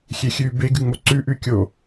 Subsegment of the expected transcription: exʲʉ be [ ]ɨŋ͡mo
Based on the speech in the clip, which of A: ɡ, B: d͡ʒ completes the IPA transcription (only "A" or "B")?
A